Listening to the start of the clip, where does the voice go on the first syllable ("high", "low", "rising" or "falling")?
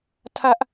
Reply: high